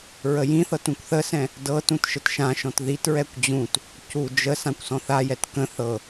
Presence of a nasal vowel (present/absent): present